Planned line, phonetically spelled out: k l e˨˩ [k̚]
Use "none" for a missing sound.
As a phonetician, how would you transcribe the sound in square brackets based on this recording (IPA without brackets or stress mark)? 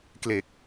k̚